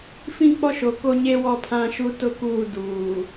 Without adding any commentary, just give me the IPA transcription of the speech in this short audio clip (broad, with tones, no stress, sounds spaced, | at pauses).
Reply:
f ĩ˦˨ k͡p ɔ˦ ʃ o˨ k o˦ ɲ e˦ w ɔ˦˨ pʰ ã˦ ʃ u˦ t ʊ˦ k uː˦˨ d uː˨